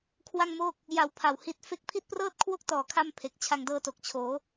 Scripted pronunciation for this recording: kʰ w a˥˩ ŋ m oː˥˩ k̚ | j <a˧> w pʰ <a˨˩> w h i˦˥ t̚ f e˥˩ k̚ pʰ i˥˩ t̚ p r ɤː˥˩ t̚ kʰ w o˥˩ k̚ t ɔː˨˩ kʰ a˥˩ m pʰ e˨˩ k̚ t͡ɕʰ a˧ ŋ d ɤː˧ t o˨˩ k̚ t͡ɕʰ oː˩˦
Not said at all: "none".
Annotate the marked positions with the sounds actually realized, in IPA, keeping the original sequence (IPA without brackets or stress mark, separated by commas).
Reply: a˧, a˨˩